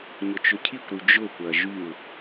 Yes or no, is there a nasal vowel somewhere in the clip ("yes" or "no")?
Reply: no